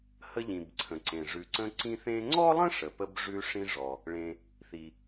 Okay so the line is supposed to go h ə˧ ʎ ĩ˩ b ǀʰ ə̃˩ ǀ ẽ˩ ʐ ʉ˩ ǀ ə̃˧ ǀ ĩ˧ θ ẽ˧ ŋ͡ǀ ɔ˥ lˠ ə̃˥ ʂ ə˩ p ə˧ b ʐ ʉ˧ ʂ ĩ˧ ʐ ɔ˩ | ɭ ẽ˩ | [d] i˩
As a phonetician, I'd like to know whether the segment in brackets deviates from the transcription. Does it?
yes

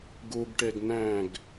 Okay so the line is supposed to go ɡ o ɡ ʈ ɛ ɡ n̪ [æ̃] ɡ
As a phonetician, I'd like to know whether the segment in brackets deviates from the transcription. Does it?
no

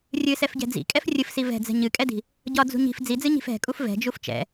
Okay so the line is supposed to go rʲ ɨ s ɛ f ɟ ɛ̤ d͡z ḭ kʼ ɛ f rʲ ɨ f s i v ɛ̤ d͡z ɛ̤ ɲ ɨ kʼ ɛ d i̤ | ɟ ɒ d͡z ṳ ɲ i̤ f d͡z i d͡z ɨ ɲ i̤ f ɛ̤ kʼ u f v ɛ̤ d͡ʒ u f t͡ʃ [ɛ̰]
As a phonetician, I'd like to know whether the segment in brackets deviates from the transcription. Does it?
no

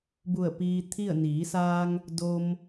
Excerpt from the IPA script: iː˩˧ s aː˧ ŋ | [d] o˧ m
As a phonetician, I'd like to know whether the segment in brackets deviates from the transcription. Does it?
no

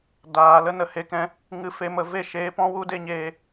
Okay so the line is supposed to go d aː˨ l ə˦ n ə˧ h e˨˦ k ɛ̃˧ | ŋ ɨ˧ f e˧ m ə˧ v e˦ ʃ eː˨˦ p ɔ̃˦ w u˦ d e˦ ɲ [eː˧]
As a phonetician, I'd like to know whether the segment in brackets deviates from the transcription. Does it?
no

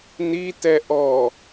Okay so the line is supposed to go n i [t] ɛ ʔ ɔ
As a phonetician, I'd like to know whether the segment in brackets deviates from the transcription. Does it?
no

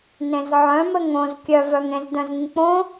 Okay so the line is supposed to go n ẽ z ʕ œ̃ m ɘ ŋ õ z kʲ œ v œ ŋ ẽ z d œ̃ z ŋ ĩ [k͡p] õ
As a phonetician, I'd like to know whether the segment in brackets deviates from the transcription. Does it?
no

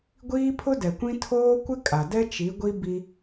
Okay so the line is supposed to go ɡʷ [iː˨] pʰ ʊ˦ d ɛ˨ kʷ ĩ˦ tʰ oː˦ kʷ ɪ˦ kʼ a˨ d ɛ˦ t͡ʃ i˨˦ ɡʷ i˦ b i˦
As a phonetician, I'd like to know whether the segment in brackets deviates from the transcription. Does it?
yes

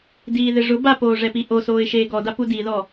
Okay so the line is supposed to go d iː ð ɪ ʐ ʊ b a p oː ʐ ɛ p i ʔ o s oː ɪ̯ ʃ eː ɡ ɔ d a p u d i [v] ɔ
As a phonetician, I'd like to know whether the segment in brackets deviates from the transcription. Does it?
yes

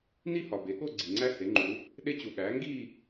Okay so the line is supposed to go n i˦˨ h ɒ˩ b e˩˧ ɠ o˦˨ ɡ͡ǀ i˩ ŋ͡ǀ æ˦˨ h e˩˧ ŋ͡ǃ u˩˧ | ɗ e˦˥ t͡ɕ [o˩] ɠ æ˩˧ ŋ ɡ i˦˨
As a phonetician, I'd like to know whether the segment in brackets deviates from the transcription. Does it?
yes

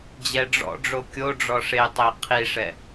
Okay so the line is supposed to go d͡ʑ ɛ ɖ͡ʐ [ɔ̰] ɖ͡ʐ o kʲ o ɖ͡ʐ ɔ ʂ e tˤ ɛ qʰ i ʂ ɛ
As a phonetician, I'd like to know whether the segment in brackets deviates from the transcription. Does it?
no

